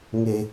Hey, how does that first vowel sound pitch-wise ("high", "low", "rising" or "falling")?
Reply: low